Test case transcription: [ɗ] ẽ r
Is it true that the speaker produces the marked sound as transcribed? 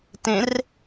no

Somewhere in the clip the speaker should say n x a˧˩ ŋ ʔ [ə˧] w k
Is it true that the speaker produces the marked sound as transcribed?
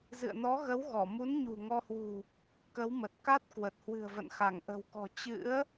no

